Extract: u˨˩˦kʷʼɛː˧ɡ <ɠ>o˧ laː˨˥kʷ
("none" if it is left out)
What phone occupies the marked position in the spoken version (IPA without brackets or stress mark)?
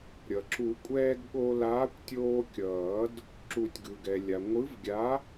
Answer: ɠ